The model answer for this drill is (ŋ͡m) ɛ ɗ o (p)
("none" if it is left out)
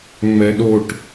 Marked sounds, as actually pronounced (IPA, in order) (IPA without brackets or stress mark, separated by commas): ŋ͡m, ʈ